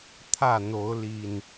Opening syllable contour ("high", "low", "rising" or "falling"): falling